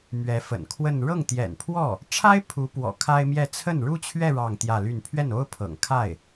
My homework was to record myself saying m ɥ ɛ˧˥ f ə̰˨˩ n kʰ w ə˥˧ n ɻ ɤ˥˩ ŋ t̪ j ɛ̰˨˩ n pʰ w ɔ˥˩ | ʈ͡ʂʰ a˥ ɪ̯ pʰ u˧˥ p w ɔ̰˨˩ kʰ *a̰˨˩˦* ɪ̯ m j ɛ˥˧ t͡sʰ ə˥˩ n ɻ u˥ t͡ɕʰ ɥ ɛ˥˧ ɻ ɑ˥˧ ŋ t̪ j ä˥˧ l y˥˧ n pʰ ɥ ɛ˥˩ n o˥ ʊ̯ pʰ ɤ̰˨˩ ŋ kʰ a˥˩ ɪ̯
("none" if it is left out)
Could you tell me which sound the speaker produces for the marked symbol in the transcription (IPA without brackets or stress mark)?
a˥